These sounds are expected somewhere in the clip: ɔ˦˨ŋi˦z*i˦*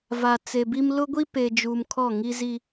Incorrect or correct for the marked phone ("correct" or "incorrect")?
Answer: correct